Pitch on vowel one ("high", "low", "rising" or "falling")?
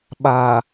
low